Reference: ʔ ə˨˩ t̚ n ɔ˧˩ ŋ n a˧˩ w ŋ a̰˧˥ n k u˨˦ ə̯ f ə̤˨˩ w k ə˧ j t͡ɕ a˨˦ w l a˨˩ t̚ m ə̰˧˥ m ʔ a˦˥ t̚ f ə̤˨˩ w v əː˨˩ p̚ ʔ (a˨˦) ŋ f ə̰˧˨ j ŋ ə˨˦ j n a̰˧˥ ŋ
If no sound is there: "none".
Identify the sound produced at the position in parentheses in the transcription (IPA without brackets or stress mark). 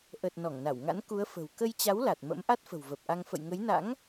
a˧